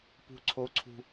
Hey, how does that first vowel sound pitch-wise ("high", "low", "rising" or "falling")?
high